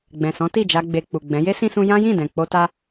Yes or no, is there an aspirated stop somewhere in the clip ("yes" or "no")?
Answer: no